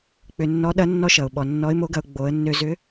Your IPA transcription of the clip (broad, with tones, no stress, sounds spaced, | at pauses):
k͡p ʏ˧ nː ɔ˧˥ ɗ ɐ˧˥ nː ɔ˧ ʃ ʌ˩ ʊ̯ ɓ ɔ˩ nː ɔ˧˥ ɪ̯ m o˧˥ ɡ ɐ˧ ʊ̯ ɡ͡b o˩˧ ə̯ nː ø˧ z ʏ˧˥